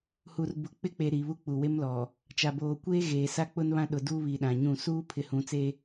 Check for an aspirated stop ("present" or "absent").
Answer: present